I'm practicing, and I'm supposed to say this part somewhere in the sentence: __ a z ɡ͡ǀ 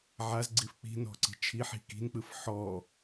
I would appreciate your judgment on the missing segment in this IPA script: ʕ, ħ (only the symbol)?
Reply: ʕ